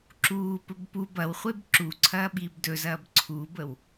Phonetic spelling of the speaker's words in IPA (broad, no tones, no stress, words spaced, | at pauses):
ǁuːpɵb pub ɐwχʷeb ǁuǀʰɐːɓiːb dɵzɐːb ǀʰubəw